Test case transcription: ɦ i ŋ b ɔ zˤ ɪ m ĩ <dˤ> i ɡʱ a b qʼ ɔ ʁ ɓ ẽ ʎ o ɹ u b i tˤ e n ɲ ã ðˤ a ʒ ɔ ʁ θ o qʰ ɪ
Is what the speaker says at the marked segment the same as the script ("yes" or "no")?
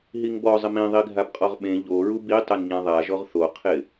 no